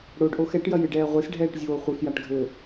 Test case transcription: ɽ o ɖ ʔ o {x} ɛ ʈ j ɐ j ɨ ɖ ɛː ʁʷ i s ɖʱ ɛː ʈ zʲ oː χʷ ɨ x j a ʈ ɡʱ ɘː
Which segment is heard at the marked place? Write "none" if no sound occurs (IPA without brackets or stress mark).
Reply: x